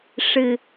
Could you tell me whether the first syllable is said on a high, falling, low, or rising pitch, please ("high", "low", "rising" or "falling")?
low